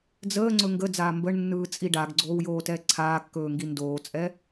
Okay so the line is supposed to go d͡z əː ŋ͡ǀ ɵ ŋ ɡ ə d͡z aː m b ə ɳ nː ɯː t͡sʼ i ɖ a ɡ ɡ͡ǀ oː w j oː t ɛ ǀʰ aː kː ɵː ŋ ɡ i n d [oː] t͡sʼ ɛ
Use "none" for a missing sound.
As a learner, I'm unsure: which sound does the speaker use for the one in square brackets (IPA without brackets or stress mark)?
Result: oː